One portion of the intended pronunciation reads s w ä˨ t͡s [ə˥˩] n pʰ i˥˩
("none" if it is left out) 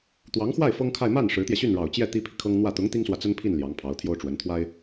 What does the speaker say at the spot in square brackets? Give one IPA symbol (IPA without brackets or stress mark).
ə˥